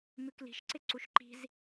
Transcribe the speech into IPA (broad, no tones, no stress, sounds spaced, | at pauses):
m ʉ k l i̤ ʃ ǀ ɪ ǀ u ʃ ǃ i̤ z